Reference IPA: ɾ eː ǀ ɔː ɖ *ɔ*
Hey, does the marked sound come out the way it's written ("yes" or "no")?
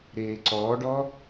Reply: yes